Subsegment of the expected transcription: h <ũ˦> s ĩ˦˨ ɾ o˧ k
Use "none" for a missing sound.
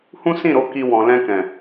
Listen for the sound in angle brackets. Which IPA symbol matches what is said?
ũ˦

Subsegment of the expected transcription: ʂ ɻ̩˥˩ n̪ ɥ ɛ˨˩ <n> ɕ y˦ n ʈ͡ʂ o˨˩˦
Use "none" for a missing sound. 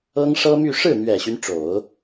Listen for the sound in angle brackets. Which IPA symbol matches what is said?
none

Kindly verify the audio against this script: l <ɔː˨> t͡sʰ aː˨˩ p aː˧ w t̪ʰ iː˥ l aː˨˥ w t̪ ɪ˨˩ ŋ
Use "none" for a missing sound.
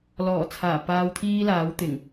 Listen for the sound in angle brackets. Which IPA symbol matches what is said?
ɔː˨˩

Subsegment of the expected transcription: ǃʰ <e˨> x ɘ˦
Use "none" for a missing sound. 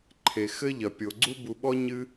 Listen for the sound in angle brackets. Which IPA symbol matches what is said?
e˨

